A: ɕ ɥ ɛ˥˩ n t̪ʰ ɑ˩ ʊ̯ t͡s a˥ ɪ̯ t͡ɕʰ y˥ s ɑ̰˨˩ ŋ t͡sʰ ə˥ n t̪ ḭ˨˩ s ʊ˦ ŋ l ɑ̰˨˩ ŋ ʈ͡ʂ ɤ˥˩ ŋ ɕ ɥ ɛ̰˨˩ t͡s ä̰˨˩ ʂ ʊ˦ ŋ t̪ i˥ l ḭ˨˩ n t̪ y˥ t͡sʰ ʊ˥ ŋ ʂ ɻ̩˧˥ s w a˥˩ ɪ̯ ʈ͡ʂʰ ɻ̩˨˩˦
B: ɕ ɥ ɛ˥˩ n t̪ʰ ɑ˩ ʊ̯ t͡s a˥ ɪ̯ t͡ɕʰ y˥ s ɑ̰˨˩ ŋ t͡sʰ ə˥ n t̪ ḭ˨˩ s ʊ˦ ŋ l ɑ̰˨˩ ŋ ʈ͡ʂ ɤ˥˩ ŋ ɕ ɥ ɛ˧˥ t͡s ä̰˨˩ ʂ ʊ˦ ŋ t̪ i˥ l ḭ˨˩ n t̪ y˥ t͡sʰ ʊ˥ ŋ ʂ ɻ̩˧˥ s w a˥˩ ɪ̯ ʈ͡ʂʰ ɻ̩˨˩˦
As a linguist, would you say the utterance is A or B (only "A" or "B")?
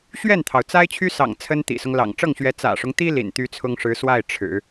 B